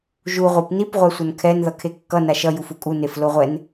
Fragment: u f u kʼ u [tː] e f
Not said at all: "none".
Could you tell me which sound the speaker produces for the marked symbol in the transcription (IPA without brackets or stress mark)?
n